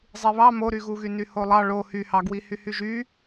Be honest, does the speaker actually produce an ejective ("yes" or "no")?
no